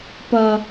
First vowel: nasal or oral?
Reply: oral